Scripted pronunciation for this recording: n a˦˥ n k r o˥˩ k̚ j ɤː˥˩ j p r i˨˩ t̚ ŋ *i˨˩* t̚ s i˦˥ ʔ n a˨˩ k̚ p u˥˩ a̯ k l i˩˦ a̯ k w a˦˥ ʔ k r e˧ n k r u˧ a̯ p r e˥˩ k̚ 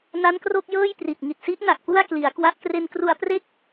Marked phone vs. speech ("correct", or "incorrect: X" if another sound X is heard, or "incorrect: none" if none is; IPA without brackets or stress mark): correct